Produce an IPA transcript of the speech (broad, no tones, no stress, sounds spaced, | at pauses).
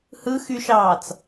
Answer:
h ɯ x y ʃ ɑː t͡s